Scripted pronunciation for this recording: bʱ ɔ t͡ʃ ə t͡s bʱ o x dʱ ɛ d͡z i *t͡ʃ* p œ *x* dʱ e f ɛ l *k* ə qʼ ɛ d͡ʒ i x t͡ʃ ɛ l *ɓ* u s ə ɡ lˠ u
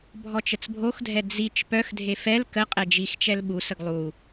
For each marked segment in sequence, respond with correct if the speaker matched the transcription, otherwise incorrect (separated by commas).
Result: correct, correct, correct, correct